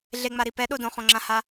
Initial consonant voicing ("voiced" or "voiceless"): voiced